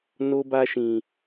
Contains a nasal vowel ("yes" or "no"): yes